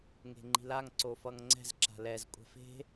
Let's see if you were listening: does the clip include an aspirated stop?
no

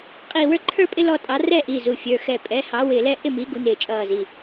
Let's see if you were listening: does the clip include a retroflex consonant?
no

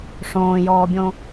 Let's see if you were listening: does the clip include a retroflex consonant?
yes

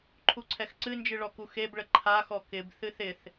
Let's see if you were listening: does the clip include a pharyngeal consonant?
no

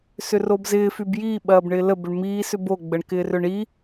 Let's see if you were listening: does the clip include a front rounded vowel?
yes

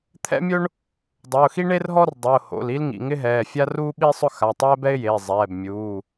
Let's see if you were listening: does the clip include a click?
no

